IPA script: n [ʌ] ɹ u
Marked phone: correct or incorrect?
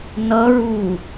correct